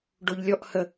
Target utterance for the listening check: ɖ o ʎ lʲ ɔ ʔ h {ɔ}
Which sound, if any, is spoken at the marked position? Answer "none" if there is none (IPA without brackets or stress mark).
ə